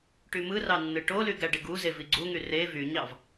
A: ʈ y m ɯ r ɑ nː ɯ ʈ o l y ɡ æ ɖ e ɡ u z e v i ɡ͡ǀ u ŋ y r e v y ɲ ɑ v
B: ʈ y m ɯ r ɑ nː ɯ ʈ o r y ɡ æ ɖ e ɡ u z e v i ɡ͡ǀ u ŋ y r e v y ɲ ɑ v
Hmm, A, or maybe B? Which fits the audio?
A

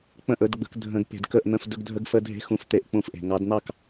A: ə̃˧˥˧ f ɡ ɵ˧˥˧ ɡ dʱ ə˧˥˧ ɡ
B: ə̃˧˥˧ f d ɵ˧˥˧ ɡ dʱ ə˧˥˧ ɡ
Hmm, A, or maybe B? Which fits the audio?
B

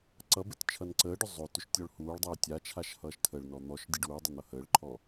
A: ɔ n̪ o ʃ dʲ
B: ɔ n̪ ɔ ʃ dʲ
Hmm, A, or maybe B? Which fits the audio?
B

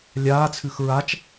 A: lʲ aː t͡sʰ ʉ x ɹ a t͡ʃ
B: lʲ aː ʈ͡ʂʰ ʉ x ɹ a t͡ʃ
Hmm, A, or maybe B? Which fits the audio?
A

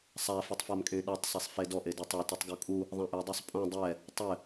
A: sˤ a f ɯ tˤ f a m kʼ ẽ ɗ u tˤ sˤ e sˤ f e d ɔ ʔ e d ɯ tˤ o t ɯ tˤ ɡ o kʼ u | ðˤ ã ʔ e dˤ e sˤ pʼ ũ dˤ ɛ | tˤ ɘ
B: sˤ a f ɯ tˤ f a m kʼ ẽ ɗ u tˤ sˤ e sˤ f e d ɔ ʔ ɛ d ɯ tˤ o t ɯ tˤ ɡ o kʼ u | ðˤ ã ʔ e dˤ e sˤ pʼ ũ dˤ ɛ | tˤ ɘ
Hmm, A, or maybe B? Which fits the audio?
A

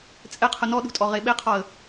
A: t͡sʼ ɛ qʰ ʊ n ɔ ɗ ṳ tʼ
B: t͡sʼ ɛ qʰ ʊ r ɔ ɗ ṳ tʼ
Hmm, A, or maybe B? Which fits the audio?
A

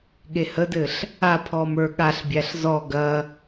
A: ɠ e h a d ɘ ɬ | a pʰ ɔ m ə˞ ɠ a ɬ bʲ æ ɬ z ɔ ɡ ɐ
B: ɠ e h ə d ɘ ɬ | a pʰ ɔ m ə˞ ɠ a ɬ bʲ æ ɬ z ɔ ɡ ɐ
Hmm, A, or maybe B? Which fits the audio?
B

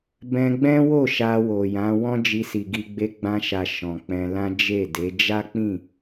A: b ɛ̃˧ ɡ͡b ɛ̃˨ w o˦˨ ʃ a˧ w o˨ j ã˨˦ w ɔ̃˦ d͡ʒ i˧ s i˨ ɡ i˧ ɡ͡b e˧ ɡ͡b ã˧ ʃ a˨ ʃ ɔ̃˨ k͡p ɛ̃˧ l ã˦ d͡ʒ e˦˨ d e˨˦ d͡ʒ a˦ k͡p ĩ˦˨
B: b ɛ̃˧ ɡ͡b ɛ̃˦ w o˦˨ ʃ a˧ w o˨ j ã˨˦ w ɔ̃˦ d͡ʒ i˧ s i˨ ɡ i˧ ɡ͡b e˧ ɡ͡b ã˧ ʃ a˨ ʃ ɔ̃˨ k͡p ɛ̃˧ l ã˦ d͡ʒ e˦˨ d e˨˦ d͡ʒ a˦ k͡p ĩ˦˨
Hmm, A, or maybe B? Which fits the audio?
B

